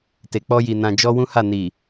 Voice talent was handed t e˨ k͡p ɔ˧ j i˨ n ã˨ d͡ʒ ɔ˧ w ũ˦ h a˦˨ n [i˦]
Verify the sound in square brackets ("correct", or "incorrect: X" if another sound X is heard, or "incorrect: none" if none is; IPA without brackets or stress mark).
incorrect: i˨